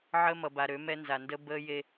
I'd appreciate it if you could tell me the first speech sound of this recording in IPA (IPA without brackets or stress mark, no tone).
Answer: ʕ